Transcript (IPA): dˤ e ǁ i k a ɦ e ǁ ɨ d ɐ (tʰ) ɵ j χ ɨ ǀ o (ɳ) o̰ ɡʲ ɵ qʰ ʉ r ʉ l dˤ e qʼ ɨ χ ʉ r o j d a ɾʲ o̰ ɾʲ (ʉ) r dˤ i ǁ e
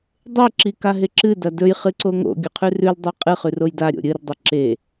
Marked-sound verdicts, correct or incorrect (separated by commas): incorrect, incorrect, incorrect